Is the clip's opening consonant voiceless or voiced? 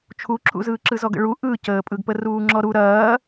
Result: voiceless